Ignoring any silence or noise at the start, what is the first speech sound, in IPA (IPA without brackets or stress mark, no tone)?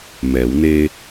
m